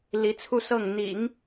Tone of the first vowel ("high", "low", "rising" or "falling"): rising